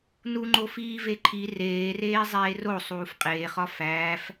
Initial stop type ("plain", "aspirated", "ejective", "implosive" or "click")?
click